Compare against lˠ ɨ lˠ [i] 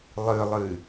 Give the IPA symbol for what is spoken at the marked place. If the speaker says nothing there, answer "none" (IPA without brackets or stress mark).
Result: ɨ